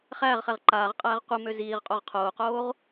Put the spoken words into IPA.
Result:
χ æː ʁ χ ɛ ʁ ǃ aː ʁ qʼ æː ʁ qʷ i m ø z iː ʁ qʼ o ʁ qʰ oː q oː ʁ

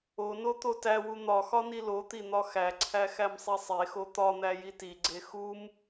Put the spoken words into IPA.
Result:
o n o t̪ o t æ w u n̪ ɒ x ɒ n i l o t̪ i n̪ ɒ x æ ǀʰ æ x æ m sˤ i sˤ e x o t̪ ɒ n̪ æ j i t i ɡ͡ǀ e x u m

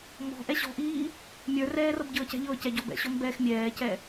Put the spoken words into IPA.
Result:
m ɔ̤ ʔ ɛ ɕ ɔ̤ ʔ iː | mʲ ə˞ r ɛː r ɤ b ɟ ɤː c ɛ̤ ʎ ɤː c ɛ ɟ ɔ b ɛ̰ ɕ ɔ m b ɛː x mʲ ɛː c ɛ

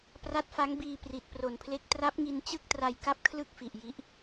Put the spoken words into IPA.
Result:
p r a˦˥ t̚ f a˦˥ ŋ b iː˧ p r i˨˩ t̚ p r o˨˩ n pʰ l e˦˥ k̚ t r a˦˥ p̚ ŋ i˧ n t͡ɕ ɯ˥˩ k̚ t r a˧ j k a˥˩ p̚ kʰ l ɯ˥˩ k̚ f i˨˩ ʔ j i˦˥ ʔ

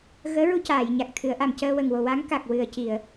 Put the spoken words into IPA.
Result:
ɣ əː˧˥ ɹ u˧ c aː˨˩˨ j ɲ a˨˩ k̚ t̪ʰ ɨ˨˩˦ ə̯ ʔ a˨˩ m c əː˧ w ə˨˩ ŋ w o˨˩ w a˧˥ ŋ k a˨˩ k̚ w ɨ˨˩ ə̯ c i˨˩˨ ə̯

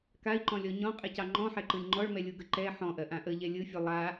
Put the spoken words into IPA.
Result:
k a i̯ ǃ ɔ̃ lʲ ɔ ɲ ɔ̃ qʼ ɛ c ɑ ŋ͡ǃ ɔ̃ ħ ɛ ǃ ɯ lʲ ŋ͡ǃ ɔ ɭ m ɛ lʲ u ɡ ə ǃ ɛ ħ ɔ̃ ʔ ɜ ʔ ã ʔ ə ʎ ɛ lʲ ɯ fʲ u lˠ a

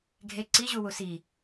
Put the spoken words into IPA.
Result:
ɡʱ e ǀ i ʑ u w u s i

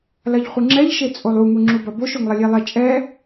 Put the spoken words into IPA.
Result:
l ɐ ʎ χʷ ɨ ŋ͡ǁ ɛ ʎ ʃ e t͡sʼ o lˠ u ŋ u ŋ͡ǁ u b ɐ b o ʃ o ŋ lˠ ɐ lʲ e lˠ ɛ t͡ʃʼ ɛ

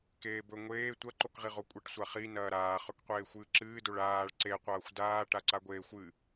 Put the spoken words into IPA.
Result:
k eː b ɵ ŋʷ eː tʷ ɐ ǃ o k ʁ i ʁ o kʷʼ ɐ ʈ sʷ a χ i n ɐː ɾ aː χ ɵ k qʷ eː xʷ ɨː ǁ ɨː d o ɭ aː ɭ ǀ e qʷ ɐː xʷ d aː ʈ a ǀ a ɡʷ eː xʷ ɨ

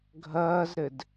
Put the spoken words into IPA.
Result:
ɡʱ ɐː z ɾ ɘ d

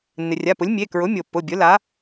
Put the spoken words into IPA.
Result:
nː ɪ˩ rʲ a˩˧˩ p ʊ˩˥ lʲ mʲ e˩˧˩ k ɹ ʊ˩˥ mʲ o˩ pː ʊ˩˧˩ bʲ ʊ˩˥ l a˩˥

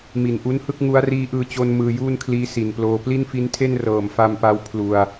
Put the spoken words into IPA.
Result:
m i˨˩ n ʔ u˦˥ n h ɯ˥˩ k̚ ŋ u˦˥ a̯ r iː˦˥ ʔ ɯː˧ t͡ɕ o˧ n m ɯː˧ j uː˥˩ n kʰ l iː˦˥ s i˨˩ n p l oː˧ p l i˥˩ n f i˦˥ n tʰ e˥˩ n r ɤː˨˩ m f a˧ m p a˧ w pʰ l u˧ a̯

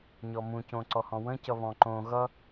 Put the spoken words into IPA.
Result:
ɲ ɔ m ũ c õ ǀ ɔ h ɔ̃ w ə̃ c ʌ β ɔ̃ ǃ õ ɣ ʌ

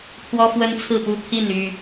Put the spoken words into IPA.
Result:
pʰ w ɔ˦ f w ə˦ n t͡sʰ ɹ̩˥˨ p u˥˨ t̪ʰ i˥˨ n y˥˨

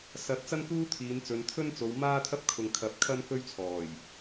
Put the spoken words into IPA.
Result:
s ɐ˨˥ t̚ t͡s ɐ˥ n k uː˥ t̪ʰ iː˨˧ n t͡s ɵ˨˧ n t̪ʰ ɵ˥ n t͡s o˨˧ w m aː˥ t̪ʰ ɐ˥ p̚ kʰ ʊ˨ ŋ kʰ ɐ˨˥ p̚ kʰ ɐ˥ n k ɵ˥ ɥ t͡sʰ ɔː˨˩ j

